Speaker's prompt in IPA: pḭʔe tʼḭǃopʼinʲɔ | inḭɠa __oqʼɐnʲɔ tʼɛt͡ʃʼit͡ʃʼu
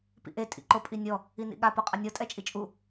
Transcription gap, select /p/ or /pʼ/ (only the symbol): p